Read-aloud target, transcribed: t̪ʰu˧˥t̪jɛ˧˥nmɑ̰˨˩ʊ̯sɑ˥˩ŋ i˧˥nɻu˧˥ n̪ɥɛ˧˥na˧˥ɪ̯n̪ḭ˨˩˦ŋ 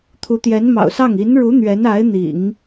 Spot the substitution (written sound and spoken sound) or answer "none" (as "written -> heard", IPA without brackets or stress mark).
none